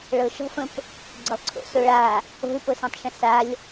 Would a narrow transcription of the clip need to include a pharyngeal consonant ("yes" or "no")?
no